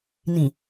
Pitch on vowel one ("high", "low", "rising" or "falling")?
low